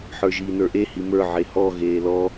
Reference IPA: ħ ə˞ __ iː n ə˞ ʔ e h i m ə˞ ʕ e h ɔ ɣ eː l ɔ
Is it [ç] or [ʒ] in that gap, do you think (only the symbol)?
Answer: ʒ